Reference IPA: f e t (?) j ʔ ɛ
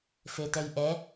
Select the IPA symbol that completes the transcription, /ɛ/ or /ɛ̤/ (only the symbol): ɛ